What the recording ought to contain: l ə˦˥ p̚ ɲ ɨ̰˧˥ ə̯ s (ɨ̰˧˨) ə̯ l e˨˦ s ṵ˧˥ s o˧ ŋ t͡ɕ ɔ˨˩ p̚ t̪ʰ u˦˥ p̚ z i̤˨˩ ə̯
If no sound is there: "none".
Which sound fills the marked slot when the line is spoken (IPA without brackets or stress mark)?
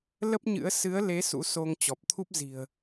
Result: ɨ˨˦